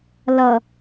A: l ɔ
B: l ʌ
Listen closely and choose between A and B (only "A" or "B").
B